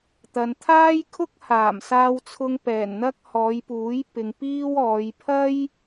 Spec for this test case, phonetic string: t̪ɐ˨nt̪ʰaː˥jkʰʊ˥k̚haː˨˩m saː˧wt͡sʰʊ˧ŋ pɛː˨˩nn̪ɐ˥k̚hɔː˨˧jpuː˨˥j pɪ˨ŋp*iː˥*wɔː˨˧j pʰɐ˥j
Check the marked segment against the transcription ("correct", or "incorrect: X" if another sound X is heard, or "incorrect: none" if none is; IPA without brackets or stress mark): correct